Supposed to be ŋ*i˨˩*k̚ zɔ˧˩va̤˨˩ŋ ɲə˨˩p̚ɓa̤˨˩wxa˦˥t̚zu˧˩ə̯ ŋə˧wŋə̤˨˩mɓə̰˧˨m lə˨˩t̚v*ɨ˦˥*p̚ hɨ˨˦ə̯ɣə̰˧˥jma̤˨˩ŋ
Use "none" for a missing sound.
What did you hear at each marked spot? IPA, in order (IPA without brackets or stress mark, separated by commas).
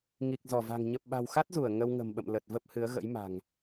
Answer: i˨˩, ə˦˥